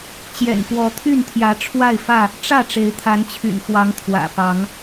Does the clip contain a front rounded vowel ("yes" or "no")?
yes